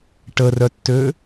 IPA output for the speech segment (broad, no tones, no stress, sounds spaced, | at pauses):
ʈ ə r œ tː ø